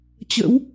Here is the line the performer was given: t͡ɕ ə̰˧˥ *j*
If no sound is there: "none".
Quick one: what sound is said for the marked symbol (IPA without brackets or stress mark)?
w